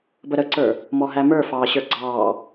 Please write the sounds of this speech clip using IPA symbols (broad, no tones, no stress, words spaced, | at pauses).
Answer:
bəɾəǀə˞ | mɔɦæmə˞ fɑːɕə˞ɡ͡ǀɑː